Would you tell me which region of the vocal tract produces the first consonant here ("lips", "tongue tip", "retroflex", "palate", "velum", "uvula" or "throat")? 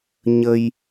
palate